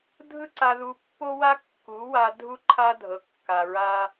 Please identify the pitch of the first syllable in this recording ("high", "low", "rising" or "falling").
high